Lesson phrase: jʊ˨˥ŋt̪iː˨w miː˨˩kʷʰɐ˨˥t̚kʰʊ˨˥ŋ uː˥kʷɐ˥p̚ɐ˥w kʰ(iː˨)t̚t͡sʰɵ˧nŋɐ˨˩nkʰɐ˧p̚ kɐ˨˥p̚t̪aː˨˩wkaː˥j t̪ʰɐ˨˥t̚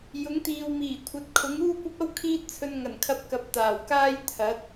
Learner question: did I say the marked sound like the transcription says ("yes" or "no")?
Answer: no